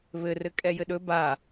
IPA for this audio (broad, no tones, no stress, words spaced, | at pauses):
βɘrɘ kʼɛjɘɗɵ ba